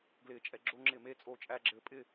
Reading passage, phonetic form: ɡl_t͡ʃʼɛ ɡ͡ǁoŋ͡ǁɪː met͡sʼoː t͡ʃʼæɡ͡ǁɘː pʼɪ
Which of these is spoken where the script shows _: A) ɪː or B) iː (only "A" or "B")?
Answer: A